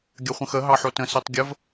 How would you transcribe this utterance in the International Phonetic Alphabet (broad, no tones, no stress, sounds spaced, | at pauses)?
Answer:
ɡʲ ɐ χʷ ə̃ x ə ɦ ɑ ħ o t ə̃ s i tˤ ɡʲ ə v